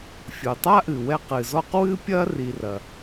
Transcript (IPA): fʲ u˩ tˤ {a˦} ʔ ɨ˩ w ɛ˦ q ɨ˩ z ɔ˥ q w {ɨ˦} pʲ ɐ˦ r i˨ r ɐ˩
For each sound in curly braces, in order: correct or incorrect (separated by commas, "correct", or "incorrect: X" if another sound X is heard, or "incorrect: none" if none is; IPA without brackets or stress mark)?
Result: correct, correct